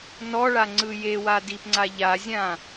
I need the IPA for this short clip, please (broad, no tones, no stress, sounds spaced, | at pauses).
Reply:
n ɔ ɭ a ŋ͡ǀ ɯ j e w a d i p ŋ͡ǀ a ʎ a zʲ ã